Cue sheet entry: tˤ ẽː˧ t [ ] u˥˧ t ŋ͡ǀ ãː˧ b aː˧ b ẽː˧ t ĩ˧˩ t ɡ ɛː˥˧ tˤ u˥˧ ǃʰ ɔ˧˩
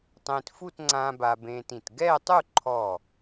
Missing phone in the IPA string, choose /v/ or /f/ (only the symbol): f